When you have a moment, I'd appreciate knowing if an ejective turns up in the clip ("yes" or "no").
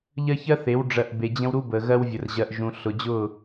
no